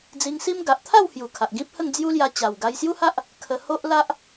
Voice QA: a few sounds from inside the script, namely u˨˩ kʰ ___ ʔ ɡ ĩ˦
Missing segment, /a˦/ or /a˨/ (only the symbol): a˨